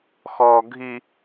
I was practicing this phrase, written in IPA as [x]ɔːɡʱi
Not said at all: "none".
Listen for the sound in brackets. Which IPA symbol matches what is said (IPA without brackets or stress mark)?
x